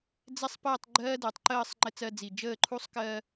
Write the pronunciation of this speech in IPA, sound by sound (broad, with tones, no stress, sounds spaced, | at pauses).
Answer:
d͡z ɛ˥ sˤ p əː˥˧ tˤ ɡ͡ǃ ɜː˥ d əː˩˧ tˤ ǃ əː˥˧ sˤ ŋ͡ǃ ɘ˥ t͡s ɜ˥ d͡z i˧˩ d͡ʒ əː˥˧ ǃʰ u˥ sˤ k ɜ˥